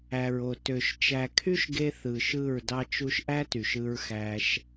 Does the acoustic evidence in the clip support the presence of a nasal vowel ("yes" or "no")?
no